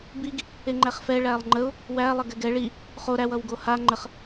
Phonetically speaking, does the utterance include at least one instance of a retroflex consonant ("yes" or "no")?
yes